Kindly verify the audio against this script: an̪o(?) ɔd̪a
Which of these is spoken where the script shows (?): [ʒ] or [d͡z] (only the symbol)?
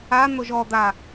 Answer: ʒ